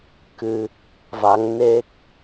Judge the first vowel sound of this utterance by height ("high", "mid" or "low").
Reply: high